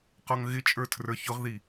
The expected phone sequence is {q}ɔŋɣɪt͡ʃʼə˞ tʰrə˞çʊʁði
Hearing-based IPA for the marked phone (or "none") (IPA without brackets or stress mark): q